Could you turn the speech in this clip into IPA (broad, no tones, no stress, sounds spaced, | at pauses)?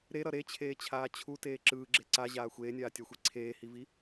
ɾ e ɾ ʌ ɾ e t͡ɕʰ eː t͡ɕʰ aː t͡ɕʰ u t eː ǁ ɯː ɡ͡ǁ e ǀ a ʑ aː xʷ eː nʲ aː tʲ a xʷ i ǀʰ eː h i v i